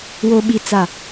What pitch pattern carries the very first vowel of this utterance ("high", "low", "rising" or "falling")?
low